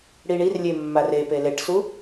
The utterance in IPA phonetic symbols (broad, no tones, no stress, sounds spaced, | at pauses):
ɽ i ɳ i r lʲ e mː a r e p e l e ʈ s u